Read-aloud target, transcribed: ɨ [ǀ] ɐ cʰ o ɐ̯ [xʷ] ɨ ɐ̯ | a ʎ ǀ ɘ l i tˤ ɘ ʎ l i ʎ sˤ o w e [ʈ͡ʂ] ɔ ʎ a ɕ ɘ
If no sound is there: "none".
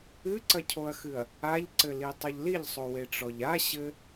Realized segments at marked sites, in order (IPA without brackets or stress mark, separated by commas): ǀ, x, ʈ͡ʂ